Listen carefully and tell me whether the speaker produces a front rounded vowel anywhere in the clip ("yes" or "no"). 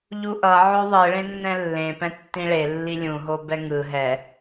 no